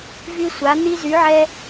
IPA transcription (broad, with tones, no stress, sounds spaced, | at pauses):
v y˦ sʷ a˨˥ n̪ i˦ z y˨˥ ʕ ɛ˦